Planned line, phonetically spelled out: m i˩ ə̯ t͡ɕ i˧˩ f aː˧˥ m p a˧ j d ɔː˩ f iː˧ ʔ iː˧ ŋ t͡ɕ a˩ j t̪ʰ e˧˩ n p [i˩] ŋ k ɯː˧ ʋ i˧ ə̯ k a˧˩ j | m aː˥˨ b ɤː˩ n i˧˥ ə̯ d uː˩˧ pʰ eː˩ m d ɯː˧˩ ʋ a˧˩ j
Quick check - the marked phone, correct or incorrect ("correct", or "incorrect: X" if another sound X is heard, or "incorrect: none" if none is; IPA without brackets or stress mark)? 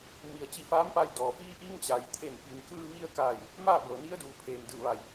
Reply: correct